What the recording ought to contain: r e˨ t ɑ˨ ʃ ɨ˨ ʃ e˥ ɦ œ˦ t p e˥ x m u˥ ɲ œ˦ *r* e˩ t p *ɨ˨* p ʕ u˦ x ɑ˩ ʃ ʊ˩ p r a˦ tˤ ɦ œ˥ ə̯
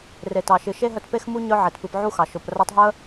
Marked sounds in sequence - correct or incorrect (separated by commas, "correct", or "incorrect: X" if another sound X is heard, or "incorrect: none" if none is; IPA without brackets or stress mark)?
incorrect: ʕ, correct